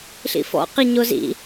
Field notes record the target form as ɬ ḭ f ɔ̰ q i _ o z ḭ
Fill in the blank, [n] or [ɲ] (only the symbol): ɲ